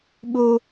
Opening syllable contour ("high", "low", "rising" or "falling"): high